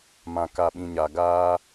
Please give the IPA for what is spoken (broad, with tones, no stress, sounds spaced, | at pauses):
m ã˨ k a˨ ɓ ĩ˨ ɲ a˨ ɡ aː˦